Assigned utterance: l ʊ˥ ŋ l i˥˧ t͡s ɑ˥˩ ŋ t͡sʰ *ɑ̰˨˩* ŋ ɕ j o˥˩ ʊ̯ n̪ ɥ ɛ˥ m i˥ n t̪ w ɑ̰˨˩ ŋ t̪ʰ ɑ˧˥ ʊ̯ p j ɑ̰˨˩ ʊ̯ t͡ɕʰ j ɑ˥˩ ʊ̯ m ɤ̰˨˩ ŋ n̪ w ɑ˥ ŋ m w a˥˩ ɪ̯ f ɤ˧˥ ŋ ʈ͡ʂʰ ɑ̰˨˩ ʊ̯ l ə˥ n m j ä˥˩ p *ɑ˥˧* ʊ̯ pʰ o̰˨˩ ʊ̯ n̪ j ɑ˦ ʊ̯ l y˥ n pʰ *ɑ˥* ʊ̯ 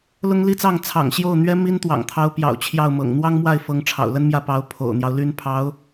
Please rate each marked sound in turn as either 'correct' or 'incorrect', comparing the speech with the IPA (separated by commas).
correct, incorrect, incorrect